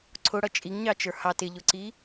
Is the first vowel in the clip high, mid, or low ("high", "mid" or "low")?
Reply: high